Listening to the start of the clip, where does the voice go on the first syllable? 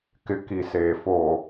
low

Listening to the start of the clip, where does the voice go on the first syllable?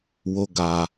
high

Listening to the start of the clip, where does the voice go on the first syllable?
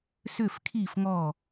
falling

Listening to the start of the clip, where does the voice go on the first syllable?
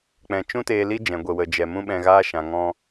low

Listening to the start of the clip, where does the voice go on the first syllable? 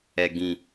low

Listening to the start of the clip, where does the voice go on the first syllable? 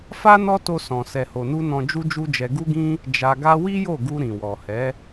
high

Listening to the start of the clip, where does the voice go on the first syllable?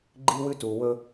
high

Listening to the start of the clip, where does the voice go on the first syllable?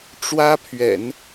high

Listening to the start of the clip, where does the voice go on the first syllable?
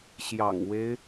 low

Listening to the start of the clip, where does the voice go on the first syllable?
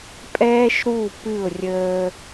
high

